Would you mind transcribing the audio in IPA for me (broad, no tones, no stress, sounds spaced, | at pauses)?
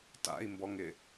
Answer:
t a̰ i̯ m b ɔ ŋ ɪ